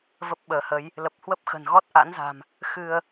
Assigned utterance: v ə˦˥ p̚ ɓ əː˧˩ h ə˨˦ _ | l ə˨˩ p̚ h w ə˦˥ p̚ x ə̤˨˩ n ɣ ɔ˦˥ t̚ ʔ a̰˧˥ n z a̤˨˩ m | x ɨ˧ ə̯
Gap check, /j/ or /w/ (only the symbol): j